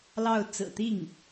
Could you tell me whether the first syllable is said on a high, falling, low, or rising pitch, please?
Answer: falling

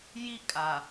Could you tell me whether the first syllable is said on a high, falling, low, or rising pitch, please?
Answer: high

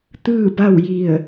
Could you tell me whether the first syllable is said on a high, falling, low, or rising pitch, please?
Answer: falling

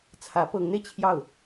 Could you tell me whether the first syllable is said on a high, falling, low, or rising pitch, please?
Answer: rising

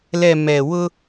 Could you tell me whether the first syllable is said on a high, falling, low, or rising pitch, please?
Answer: low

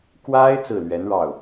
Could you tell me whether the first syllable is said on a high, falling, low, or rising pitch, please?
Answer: high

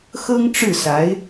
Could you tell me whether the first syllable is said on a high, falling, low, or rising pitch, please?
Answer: high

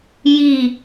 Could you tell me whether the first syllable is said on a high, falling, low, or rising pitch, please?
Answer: falling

